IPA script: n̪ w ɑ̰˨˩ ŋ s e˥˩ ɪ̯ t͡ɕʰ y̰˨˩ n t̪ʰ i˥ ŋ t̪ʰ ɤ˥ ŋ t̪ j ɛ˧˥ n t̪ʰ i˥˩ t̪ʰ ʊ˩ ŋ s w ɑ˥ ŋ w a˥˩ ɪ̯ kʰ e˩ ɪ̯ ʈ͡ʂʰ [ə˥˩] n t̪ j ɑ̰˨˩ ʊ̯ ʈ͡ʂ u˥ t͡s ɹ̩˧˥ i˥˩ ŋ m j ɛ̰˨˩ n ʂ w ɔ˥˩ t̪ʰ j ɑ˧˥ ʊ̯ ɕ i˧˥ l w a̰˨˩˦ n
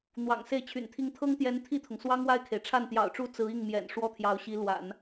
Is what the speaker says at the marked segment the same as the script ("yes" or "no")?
no